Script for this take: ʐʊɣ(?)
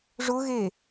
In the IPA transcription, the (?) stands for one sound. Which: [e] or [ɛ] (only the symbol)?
e